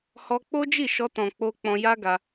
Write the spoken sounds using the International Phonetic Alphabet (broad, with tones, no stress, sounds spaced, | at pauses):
h ɔ˧ k͡p o˦ d͡ʒ i˦˨ ʃ ɔ˧ t ɔ̃˨ k͡p o˧ k͡p ɔ̃˧ j a˦ ɡ a˧